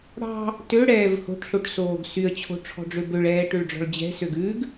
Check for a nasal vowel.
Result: absent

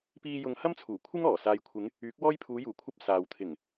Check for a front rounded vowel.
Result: present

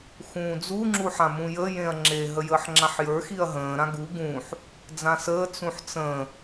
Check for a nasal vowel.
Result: present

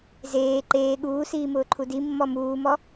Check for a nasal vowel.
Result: absent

